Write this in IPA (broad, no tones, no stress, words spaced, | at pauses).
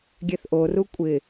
ɡʲɛθʔoru kʷʼɪ